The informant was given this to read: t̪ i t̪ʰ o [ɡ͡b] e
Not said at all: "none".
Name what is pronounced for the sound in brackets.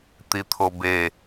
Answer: b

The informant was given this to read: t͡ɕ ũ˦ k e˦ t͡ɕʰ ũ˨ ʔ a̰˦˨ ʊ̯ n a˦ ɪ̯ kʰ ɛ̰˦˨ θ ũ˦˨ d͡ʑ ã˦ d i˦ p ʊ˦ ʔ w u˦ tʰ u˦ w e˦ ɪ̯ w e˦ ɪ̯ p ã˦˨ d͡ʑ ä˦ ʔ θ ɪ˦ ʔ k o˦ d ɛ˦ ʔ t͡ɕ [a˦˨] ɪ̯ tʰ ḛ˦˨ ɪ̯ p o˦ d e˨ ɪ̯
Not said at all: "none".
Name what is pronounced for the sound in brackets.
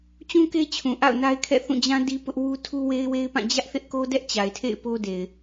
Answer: a˨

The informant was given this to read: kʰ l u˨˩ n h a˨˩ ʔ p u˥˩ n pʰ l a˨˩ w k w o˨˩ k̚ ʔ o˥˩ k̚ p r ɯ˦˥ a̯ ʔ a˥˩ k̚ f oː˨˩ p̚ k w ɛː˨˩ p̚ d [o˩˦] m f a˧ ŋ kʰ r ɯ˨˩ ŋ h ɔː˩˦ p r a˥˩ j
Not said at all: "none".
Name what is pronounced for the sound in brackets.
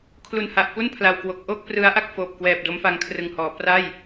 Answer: o˦˥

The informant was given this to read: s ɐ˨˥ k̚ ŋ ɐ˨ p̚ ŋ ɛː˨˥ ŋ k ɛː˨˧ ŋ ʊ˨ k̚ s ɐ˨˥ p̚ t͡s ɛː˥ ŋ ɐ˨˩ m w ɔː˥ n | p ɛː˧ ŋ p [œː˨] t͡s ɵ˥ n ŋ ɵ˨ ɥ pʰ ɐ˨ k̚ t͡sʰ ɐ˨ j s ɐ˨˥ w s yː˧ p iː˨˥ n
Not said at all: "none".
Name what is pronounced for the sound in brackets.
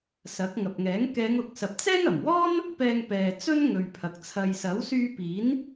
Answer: ɛː˨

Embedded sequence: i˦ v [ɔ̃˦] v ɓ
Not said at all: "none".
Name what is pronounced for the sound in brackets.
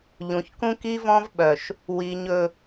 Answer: ɔ̃˦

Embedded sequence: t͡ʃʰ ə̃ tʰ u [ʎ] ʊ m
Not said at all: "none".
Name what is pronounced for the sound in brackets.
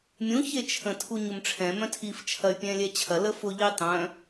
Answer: ɲ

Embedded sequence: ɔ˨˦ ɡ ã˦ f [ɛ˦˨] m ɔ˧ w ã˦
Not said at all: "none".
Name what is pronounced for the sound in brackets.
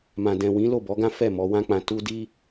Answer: ɛ˦˨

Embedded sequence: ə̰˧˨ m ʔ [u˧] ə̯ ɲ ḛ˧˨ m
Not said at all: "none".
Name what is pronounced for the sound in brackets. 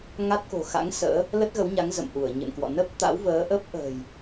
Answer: u˧˩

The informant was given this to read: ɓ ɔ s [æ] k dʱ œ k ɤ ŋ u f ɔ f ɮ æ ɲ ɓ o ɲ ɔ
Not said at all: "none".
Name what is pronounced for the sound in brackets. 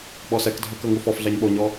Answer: ɛ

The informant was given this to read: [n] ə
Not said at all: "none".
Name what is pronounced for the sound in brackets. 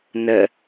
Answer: n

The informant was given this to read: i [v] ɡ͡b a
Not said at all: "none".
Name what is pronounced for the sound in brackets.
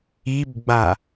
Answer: b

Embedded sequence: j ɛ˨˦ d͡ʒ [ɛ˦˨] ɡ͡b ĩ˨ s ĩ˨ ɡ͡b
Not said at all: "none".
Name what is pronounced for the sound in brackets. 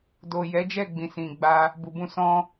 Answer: ɛ˦˨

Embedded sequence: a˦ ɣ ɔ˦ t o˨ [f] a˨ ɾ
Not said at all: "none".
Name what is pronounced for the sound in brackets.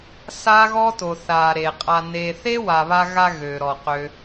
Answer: θ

